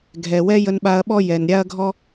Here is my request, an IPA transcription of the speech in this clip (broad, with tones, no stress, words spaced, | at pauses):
ɡʱɛ˩ wɛ˥jə˧nɓa˧ɐ̯ɓɔ˥ jɛ˩n ɾʲa˥ɐ̯ɡʱɔ˥